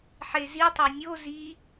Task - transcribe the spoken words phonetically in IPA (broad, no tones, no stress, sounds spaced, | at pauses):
ħ e z i tˤ ɛ nʲ o z i